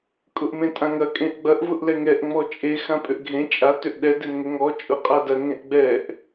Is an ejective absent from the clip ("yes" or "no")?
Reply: no